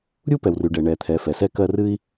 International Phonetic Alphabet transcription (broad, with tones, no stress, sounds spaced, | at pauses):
ɾʲ u˥ p ɛ˩ w r y˩ ɖ ɛ˩ ɳ ɛ˩ t̪ʰ ɛ˩ f ɛ˩ s ɛ˥ k ɜ˥ r ɨ˥ i̯